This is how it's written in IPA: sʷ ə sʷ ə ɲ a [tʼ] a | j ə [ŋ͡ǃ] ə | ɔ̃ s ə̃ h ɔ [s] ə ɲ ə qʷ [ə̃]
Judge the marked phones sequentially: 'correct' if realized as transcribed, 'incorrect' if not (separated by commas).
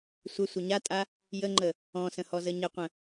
correct, correct, incorrect, correct